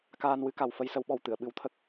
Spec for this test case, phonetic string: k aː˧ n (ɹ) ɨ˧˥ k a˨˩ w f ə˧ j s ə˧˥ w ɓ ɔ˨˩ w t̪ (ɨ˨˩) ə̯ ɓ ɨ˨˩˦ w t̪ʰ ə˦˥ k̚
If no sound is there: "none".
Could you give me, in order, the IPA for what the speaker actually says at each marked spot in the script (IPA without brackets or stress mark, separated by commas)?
w, ɨ˨˩˨